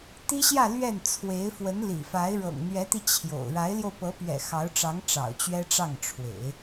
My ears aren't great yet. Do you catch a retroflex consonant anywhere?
yes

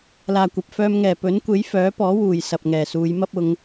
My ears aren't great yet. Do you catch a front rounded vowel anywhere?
yes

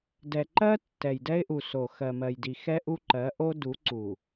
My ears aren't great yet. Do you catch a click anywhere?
yes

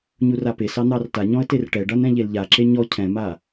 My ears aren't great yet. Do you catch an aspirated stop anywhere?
yes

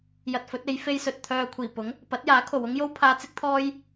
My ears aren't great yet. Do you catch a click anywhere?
no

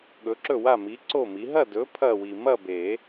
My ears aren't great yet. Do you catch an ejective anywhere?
no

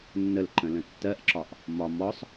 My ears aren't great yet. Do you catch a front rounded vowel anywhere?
no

